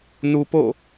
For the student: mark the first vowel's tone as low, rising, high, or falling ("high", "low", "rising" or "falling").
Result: low